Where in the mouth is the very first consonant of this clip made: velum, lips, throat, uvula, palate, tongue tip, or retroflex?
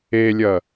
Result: tongue tip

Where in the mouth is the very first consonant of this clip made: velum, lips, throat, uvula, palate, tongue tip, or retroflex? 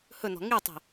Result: throat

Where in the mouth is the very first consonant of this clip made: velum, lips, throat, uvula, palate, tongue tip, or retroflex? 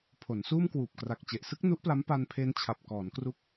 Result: lips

